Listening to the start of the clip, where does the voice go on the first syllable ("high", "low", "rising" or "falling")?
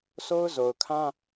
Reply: high